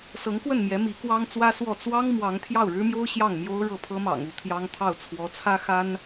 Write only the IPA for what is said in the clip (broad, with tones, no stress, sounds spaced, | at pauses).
s ɤ˧˥ ŋ k w ə˥˩ n m j ɛ˧˥ m i˧˥ k w ɑ˥ ŋ t͡s w ä˥ s w ɔ˥˩ t͡s w ɑ˥ ŋ m w ɑ˧˥ ŋ t̪ʰ j ɑ˥˩ ʊ̯ ɻ ɻ̩˥ m j o˥ ʊ̯ ɕ j ɑ˥˩ ŋ m j o˥ ʊ̯ ɻ ɤ˥˩ pʰ ɤ˥ m ɑ̰˨˩ ŋ u˧˥ t̪ʰ j ɑ˥ ŋ t̪ʰ ɑ˥˩ ʊ̯ t͡sʰ w ɔ˧˥ t͡sʰ ä˥ x a˥ n